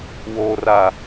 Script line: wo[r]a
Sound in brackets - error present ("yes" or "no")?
no